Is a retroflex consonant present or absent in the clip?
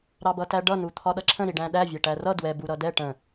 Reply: present